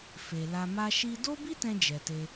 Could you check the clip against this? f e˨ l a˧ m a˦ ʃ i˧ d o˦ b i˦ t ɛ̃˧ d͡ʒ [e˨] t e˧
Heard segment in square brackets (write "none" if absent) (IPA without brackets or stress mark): ɛ˨